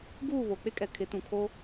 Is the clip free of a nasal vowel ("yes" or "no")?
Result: no